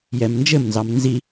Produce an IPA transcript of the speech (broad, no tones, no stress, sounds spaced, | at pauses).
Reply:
j ɛ m n d͡ʒ ɘ m n z ɑ m n z i